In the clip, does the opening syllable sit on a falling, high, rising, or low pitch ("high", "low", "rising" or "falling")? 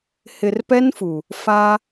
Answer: low